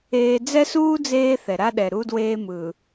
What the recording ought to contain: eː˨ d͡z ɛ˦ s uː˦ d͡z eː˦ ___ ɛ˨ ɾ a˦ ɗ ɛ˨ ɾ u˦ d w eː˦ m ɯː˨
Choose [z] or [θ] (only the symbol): θ